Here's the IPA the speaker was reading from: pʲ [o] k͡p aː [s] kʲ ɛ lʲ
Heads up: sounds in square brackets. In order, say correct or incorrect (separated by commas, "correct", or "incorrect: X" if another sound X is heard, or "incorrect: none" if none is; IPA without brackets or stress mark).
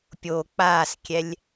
correct, correct